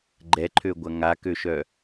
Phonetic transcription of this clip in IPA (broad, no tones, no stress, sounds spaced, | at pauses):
ɡ͡ǃ ɛ ǃʰ ø ɡʷ ɐ ŋ a k ø ʃ œ